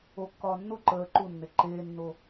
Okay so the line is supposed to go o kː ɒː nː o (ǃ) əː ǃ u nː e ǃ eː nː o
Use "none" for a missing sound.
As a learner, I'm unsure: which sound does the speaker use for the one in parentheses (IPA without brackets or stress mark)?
ǃ